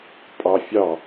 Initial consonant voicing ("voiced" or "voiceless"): voiceless